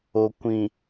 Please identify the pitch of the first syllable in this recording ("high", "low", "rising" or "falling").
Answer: low